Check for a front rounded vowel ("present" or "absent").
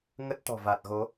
absent